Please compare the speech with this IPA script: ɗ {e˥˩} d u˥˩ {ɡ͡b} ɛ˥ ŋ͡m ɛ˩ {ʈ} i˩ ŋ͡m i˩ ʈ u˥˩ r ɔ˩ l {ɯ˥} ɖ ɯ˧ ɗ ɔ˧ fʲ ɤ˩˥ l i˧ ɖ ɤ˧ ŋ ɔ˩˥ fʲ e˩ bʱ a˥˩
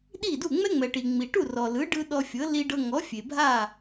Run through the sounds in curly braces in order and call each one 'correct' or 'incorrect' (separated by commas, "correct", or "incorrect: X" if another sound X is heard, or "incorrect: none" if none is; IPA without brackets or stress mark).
incorrect: i˥˩, incorrect: ŋ͡m, correct, incorrect: ɯ˩˥